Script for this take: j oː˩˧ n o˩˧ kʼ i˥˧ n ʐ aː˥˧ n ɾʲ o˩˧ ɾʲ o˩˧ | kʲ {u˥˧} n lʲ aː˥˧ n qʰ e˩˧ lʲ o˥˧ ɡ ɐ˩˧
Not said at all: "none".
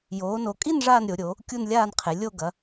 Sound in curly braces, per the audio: u˥˧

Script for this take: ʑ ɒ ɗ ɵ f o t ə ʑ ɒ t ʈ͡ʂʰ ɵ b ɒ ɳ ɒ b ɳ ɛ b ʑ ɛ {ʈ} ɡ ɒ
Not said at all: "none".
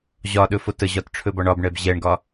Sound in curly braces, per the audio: ɳ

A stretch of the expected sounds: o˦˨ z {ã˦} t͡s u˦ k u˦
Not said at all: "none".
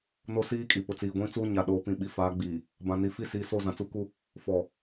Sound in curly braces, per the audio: ã˨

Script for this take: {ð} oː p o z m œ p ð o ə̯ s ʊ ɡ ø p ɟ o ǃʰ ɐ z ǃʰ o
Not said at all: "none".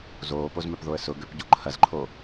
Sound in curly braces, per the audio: z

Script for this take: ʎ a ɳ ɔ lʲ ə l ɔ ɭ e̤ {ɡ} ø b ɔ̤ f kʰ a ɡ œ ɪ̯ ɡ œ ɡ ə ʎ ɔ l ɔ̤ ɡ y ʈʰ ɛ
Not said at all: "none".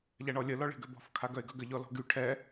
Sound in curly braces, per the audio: ɡ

